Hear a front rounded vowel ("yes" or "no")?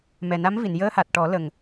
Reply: no